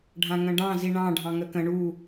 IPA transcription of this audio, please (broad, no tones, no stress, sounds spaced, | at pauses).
ɖʱ ã ŋ ə̃ ɖ ɑ̃ z i ɳ ɑ̃ ɖʱ ɑ̃ ŋ ə k ə̃ ɳ u